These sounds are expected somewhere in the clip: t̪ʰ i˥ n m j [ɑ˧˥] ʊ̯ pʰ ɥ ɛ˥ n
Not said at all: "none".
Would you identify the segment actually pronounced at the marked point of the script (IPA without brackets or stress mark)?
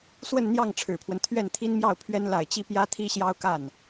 ɑ˥˩